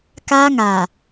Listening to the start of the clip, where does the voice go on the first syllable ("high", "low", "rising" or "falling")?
high